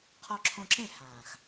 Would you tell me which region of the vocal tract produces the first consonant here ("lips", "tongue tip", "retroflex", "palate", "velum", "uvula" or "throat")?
uvula